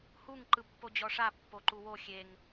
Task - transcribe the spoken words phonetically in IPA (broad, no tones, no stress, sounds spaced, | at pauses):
h u ŋ ǃ ɯ pː o d͡ʑ ɔ ʂ a pː o ǃ u w o xʲ e ŋ